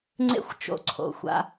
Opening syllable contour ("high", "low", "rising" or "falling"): high